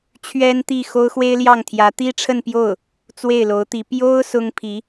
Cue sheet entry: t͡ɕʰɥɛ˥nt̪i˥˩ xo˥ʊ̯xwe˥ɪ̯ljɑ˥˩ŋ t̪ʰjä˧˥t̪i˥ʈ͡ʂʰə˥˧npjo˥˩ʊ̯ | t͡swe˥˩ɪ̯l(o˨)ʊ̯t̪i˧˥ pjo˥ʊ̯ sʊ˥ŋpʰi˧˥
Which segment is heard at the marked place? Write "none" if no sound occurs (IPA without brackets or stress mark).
o˧˥